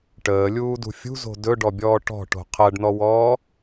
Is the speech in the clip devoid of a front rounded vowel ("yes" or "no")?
yes